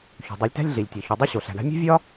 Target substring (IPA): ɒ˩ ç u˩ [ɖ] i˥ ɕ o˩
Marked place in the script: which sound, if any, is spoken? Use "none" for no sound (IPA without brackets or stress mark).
dˤ